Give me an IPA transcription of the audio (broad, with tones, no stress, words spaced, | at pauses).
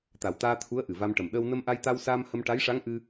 t̪a˨˩wt̪aː˧ t̪ʰu˧˥ə̯ ʔɨ˨˩va˧mʈə˨˩m ɗəː˧w nə˧mʔa˧jt̪a˧w saː˧m hə˧mʈa˧˥jʂa˧˥ŋʔɨ˧